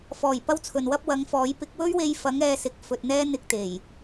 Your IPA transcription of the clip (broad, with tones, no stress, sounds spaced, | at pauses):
f ɔː˨˩ j p ɐ˥ w t͡sʰ ɵ˨ n w ɐ˥ p̚ w ɐ˨˥ ŋ f ɔː˨˥ j p ɪ˧ k̚ w ɵ˥ ɥ w e˧ j f ɐ˨˥ ŋ ɛː˨˧ s ɪ˨ k̚ f ɵ˨ t̚ n̪ ɛː˥ n̪ ɪ˧ k̚ t̪ e˨˩ j